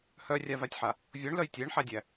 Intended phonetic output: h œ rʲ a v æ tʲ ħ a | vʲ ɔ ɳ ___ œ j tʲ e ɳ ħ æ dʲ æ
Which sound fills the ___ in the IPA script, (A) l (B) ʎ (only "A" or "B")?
A